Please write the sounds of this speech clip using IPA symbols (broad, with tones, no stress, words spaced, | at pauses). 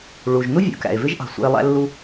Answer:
ɭu˩ʒnu˥ vʲṵ˩kæ̰˩e̯ vɪ˥ʒʔɑ̤˩sʷæ̰˧e̯ lˠæ̰˥lːu˥